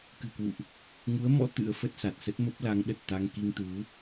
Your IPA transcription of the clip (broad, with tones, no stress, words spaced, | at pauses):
kɨ̤˨˩kwṵ˧˨ʔ | ŋu˨˦ə̯mɔ̰˧˥ t̪ɨ̰˧˥ə̯fə˦˥t̚ sa˨˩t̚sə˦˥t̚mə˦˥p̚ la˨˦ŋɗə˨˩t̚t̪a˧ŋ ki˧ŋt̪u˨˦